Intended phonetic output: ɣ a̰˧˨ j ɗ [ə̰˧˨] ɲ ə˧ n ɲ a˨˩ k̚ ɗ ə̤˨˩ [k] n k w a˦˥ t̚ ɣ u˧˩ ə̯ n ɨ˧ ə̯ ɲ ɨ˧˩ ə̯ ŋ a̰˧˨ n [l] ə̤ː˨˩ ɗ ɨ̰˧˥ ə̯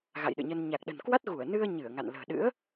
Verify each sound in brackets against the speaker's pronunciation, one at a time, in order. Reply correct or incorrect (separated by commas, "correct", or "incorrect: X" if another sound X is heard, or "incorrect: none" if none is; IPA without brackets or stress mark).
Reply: incorrect: ɨ̰˧˨, incorrect: none, correct